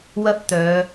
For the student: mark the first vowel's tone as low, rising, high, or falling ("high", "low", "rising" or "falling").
high